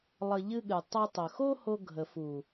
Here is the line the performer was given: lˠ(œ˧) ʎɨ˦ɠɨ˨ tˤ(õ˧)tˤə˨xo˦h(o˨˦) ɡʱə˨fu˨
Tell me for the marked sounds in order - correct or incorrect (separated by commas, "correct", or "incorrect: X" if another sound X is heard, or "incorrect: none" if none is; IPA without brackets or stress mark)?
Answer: incorrect: ə˧, incorrect: o˧, incorrect: o˧